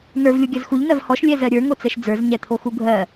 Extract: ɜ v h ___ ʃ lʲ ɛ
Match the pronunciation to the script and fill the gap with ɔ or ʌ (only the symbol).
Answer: ɔ